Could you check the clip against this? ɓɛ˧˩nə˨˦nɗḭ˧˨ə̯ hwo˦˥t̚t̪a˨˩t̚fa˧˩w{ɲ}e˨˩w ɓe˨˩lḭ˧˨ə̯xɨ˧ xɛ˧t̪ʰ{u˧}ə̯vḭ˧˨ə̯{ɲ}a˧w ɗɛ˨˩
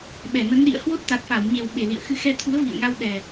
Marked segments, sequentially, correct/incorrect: correct, incorrect, incorrect

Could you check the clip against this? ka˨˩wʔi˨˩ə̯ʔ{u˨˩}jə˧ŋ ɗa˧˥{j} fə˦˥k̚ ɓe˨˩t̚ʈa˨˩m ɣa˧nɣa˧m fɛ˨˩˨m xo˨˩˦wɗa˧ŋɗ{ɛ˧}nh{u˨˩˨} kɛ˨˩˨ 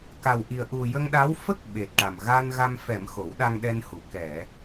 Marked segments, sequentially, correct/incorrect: correct, incorrect, correct, incorrect

